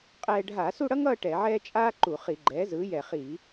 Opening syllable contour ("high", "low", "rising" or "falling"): high